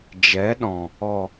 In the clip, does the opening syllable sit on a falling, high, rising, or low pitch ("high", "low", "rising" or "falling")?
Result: rising